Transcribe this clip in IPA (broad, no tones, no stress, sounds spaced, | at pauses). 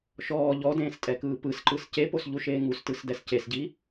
ʃ ɔː ʎ ɔ d ẽː s tʼ ɛ k ɯː p ɯ s ǃ ɯ s c e p o s ʎ u ʃ eː ŋ u s t ɯ s d ɛ s c e s ɟ i